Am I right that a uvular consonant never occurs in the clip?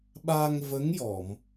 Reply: yes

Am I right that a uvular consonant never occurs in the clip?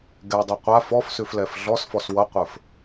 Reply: no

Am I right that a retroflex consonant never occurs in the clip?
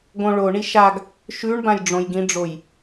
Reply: no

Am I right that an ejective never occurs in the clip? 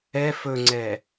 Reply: yes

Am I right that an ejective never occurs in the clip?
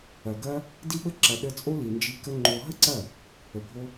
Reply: no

